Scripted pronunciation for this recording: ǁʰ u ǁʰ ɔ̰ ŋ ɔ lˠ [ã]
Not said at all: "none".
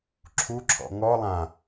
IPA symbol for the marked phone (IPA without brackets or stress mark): ã